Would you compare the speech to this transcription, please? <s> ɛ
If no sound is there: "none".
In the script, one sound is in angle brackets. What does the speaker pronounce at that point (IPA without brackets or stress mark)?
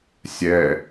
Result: sʲ